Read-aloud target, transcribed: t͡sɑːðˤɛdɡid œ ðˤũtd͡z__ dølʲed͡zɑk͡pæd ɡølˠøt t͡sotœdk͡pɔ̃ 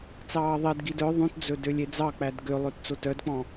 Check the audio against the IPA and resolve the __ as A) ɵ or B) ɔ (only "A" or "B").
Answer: A